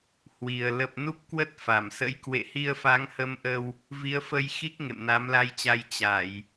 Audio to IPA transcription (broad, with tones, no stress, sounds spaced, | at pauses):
h w i˨˩ ə̯ l ə˨˩ p̚ n u˦˥ p̚ k w ə˦˥ t̚ f a˧˩ m s ə̰˧˥ j k w ḛ˧˨ h i˧ ə̯ f a˨˦ ŋ h ə˧ m ʔ ə˧ w | v i˨˦ ə̯ f ə˧ j x i˦˥ k̚ ŋ ḛ˧˨ m n a˨˦ m l a˧ j t͡ɕ a˧ j t͡ɕ a˧˩˨ j